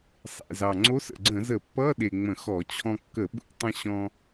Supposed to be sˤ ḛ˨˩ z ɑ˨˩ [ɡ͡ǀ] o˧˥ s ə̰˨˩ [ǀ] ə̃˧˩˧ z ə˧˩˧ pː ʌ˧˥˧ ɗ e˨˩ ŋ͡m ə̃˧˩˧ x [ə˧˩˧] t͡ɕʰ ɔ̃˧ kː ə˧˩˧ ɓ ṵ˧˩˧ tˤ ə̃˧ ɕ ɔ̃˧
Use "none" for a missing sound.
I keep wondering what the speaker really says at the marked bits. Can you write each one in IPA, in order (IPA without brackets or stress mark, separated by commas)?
ŋ͡ǀ, ɡ͡ǀ, ɔ˧˩˧